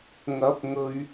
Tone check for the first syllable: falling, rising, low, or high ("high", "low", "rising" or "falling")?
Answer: rising